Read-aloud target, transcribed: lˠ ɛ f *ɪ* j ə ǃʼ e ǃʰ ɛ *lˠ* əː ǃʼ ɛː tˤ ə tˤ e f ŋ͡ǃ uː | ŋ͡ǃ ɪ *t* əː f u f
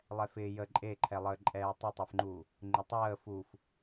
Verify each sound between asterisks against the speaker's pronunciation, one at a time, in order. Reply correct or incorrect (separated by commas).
incorrect, correct, incorrect